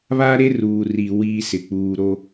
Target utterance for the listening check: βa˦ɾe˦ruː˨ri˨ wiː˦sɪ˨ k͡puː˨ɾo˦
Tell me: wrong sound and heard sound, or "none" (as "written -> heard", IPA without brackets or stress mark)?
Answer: none